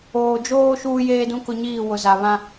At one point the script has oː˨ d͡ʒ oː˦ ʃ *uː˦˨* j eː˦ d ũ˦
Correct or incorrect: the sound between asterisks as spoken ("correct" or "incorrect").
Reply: incorrect